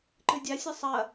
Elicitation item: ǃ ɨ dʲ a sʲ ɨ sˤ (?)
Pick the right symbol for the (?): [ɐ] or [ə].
ɐ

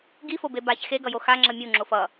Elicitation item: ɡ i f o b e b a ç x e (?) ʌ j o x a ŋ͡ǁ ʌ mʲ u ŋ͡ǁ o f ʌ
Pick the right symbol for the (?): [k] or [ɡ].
ɡ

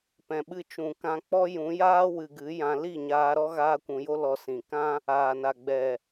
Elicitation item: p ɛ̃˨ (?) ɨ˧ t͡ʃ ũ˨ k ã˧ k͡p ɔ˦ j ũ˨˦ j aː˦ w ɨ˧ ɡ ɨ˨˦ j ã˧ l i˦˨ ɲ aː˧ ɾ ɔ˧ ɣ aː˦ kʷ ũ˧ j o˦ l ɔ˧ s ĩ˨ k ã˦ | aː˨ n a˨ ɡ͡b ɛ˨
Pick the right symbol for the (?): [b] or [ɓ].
ɓ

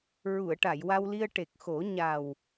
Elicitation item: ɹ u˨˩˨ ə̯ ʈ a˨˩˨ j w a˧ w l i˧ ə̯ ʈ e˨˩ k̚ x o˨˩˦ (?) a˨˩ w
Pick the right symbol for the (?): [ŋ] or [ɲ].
ɲ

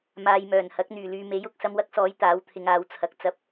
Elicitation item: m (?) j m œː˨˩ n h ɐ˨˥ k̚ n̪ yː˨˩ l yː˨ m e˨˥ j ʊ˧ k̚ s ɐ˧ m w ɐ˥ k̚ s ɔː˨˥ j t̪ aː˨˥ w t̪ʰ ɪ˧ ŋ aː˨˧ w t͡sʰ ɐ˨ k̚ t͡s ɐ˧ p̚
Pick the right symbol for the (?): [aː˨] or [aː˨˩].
aː˨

